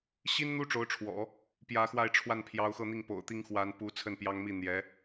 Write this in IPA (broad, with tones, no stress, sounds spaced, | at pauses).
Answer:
ɕ i˥ n n̪ u˥ ʈ͡ʂ o˧˥ ʊ̯ ʈ͡ʂʰ w ɔ̰˨˩˦ | p j ä˧˥ x w a˥˧ ɪ̯ ʈ͡ʂʰ w a˥˩ n pʰ j ɑ˧˥ ʊ̯ x ɤ˥˧ n̪ i˥˩ ŋ p o̰˨˩ ʊ̯ t̪ i˥ ŋ x w a˧˥ n p u˧˥ t͡sʰ ə˥˩ n p j ɑ˥ ŋ m i˥˩ n̪ j ɛ˧˥